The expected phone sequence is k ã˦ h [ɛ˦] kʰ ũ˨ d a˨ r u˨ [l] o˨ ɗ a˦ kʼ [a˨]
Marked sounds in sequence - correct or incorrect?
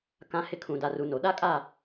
incorrect, incorrect, incorrect

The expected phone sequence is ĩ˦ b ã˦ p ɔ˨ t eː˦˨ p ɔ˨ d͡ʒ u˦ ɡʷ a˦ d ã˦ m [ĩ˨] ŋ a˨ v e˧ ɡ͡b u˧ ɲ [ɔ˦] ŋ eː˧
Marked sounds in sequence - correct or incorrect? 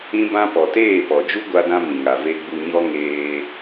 correct, correct

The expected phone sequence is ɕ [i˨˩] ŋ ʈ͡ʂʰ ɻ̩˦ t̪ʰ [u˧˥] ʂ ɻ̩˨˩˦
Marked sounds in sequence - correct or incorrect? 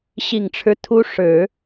correct, correct

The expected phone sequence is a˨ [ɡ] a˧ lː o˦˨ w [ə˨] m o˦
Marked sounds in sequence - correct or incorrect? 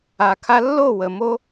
incorrect, correct

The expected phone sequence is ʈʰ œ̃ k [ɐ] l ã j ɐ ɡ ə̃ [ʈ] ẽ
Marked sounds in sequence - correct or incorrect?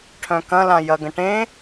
incorrect, correct

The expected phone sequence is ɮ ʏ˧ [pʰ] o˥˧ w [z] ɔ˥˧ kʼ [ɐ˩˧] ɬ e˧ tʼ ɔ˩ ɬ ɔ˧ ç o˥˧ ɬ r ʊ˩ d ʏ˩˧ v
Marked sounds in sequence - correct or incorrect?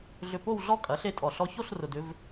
incorrect, incorrect, correct

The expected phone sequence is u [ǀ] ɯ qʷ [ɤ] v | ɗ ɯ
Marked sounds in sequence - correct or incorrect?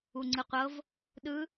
incorrect, correct

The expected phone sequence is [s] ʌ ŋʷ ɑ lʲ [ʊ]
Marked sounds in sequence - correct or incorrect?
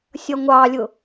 incorrect, correct

